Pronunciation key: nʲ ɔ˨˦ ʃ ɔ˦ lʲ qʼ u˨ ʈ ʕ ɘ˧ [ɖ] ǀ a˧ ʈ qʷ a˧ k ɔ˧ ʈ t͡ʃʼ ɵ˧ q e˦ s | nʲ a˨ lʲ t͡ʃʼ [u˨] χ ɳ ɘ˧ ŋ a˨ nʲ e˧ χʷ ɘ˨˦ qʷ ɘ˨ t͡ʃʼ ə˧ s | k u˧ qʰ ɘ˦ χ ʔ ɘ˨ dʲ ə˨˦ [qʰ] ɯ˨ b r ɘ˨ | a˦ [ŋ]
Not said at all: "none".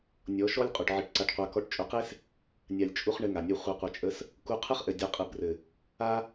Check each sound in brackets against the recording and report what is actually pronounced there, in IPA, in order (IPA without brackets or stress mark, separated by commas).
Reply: ʈ, u˧, qʼ, none